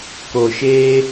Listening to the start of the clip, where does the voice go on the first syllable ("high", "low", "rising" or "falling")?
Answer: low